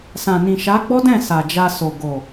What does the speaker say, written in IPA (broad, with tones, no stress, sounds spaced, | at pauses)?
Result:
s ã˨ n ĩ˨ ʃ a˨˦ ɡ͡b ɔ˦ d ɛ̃˦˨ s a˨ d͡ʒ a˧ s o˨ ɡ o˨